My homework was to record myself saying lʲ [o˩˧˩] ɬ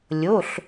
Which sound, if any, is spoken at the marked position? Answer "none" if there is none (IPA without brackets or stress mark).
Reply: o˩˧˩